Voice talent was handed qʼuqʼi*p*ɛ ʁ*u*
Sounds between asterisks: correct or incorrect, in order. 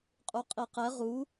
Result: incorrect: q, correct

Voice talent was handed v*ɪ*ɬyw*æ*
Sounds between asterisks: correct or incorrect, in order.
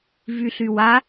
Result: incorrect: y, incorrect: a

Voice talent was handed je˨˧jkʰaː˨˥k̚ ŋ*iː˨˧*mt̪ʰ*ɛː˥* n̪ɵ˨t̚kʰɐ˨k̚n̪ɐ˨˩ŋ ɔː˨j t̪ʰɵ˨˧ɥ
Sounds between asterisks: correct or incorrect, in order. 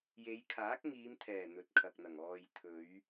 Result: correct, incorrect: ɛː˨˩

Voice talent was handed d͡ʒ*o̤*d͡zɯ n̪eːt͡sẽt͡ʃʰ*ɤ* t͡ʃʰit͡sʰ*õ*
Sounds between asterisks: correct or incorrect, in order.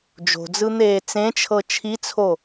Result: correct, correct, incorrect: o

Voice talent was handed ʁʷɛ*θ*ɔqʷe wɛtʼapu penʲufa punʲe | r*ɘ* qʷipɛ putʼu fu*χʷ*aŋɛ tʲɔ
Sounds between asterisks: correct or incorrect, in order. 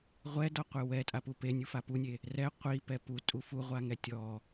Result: incorrect: d, incorrect: ɛ, incorrect: ʁʷ

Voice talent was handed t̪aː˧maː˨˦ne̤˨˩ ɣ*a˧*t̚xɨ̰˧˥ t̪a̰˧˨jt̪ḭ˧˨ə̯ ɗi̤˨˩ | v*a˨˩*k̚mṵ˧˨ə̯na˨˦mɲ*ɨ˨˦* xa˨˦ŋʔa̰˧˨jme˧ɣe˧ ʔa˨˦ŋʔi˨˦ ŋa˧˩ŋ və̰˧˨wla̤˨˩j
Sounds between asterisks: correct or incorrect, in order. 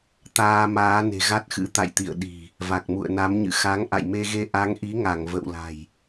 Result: incorrect: a˦˥, correct, incorrect: ɨ̰˧˨

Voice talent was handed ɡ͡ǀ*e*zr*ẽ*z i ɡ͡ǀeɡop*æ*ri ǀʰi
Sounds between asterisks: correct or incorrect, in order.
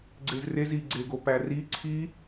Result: correct, incorrect: e, correct

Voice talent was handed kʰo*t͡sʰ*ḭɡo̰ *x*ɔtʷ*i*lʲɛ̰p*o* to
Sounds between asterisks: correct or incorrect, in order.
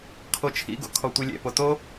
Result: incorrect: t͡ʃʰ, incorrect: kʰ, correct, correct

